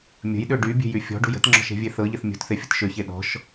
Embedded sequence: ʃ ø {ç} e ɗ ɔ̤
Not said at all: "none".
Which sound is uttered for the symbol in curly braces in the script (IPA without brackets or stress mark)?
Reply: ç